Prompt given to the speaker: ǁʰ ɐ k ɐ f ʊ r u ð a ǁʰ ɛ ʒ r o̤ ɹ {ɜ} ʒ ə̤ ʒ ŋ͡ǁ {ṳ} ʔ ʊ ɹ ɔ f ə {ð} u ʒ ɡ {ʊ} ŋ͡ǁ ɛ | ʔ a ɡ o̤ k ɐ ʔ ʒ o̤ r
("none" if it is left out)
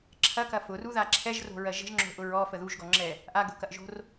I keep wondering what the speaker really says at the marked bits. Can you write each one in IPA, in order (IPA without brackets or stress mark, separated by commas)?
ɜ, o̤, ð, ɔ